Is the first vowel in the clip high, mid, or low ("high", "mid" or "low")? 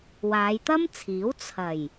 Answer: low